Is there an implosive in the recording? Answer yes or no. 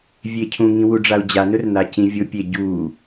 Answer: no